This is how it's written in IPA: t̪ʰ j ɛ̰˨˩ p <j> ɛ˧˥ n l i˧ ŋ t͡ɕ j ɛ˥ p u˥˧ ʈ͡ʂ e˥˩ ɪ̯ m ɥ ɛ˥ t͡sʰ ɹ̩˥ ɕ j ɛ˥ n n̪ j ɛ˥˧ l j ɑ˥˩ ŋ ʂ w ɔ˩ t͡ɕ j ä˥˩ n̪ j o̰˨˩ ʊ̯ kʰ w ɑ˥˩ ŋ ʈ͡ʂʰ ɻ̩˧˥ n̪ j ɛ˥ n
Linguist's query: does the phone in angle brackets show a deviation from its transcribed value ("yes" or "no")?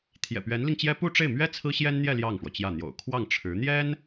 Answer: yes